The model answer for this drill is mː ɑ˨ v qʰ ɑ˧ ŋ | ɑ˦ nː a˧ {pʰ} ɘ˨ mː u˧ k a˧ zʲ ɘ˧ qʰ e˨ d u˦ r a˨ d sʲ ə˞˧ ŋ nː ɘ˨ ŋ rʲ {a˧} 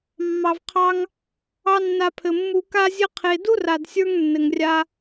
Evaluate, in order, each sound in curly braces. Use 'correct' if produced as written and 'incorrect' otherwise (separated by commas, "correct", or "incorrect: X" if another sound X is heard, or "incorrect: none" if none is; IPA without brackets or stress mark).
correct, correct